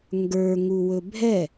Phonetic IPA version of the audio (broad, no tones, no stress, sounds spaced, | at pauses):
ŋ ɡ ə˞ ŋ u w ɵ bʱ ɛ